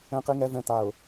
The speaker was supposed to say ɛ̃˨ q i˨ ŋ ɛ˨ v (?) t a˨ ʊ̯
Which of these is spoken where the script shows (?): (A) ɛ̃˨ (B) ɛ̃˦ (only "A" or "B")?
A